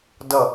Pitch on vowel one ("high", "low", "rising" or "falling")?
falling